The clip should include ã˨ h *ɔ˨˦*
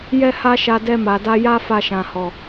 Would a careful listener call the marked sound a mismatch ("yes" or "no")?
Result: yes